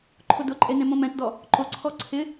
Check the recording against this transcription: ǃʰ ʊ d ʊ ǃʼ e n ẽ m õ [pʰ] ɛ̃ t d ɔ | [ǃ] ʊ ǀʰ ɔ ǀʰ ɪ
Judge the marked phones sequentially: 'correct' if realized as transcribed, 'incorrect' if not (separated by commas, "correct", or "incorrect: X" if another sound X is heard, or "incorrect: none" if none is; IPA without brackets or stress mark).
incorrect: m, correct